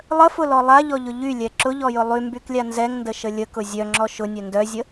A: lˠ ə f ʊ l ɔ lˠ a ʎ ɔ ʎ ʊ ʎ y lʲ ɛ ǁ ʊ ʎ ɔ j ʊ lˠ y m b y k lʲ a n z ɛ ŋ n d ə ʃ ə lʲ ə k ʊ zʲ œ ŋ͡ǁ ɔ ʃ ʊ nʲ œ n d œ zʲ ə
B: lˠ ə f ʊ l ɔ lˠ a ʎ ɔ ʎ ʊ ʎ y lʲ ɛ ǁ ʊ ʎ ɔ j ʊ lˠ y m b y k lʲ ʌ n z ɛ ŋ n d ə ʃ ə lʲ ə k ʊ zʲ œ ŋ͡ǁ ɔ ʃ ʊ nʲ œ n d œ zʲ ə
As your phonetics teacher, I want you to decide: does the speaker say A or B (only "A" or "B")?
A